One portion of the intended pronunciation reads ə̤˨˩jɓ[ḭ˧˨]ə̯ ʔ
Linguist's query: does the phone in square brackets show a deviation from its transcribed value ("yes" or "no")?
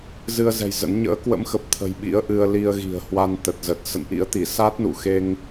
yes